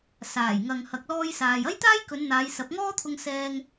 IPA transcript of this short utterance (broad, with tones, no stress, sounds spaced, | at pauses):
s aː˨˩ j ŋ ɐ˨ ŋ h ɐ˨ k̚ l ɔː˧ j s aː˨ j ɐ˥ j t̪ aː˥ j k ɵ˨˧ n n̪ aː˨˧ j s ɐ˨˥ p̚ ŋ ɔː˥ t̪ʰ ʊ˧ ŋ s ɛː˧ ŋ